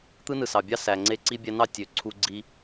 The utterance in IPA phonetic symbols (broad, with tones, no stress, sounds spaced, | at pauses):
t̪ ɯ˦ n ɯ˨ s ɑ˨ bʲ ɑ˦ s æ˨ ŋ͡ǀ e˧ ǀ i˧ bʲ æ˧ n ɑ˦˨ tʲ ø˨˦ ǀʰ u˧ ɡ͡ǀ i˧